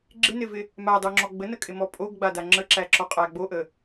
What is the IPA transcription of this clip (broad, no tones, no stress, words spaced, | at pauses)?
ɡ͡ǁɪnɪvɪ | madˤoŋ͡ǁɔ ɡ͡bənəkʼɪmɔ pʼoɡɡ͡bada ŋ͡ǁəǁæǁɔqʼæ ɡ͡boʔə